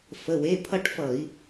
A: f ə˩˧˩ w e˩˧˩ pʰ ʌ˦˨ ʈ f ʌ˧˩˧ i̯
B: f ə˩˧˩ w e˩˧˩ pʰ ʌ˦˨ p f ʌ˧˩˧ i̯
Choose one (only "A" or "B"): A